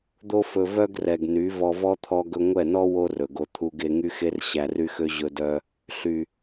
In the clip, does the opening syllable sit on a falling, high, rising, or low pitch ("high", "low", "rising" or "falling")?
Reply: high